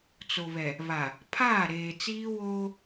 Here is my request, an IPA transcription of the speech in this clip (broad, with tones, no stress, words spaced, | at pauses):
t͡so˨βɛ˨ | βa˨ | pʰaː˦˨ɾeː˨t͡siː˦ woː˦